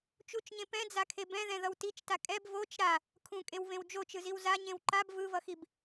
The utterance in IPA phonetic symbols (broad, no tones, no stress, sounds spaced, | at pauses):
t͡ʃ u t͡ʃ ɲ ẽ p ɛ̃ d͡z a kʰ e b ɛ̃ ð ɛ̃ ð ʌ w t i t͡ʃ t a kʼ ɛ b v o t͡ʃ ɾ a | kʰ ũ kʼ e w v ẽ w d͡ʒ o t͡ʃ ɯ z i w z a ɲ ẽ w ǃ a b v ɯ v ʌ x i b